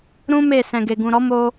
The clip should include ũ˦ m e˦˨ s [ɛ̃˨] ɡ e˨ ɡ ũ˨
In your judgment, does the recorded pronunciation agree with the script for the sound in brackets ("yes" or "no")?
yes